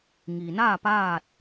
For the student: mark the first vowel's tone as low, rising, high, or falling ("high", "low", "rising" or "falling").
low